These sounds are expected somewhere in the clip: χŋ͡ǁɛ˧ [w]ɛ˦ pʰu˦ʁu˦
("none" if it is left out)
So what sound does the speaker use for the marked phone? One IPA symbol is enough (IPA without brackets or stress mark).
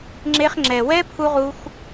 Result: w